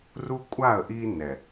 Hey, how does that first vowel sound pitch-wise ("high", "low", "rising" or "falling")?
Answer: high